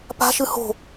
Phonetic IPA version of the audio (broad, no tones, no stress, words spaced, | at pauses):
pa̤ʃɨ ho̤